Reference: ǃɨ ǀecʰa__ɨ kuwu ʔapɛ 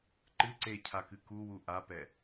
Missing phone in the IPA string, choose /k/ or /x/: k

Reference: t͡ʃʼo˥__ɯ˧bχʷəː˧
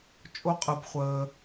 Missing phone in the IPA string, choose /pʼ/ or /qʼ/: qʼ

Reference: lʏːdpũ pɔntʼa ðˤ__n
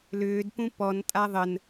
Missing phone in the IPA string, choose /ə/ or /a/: ə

